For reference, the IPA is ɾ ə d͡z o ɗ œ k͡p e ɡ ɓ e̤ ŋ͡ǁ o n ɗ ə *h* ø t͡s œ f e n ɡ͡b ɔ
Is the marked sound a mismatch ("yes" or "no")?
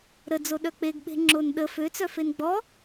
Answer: yes